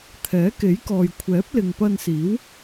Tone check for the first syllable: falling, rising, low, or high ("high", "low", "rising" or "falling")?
rising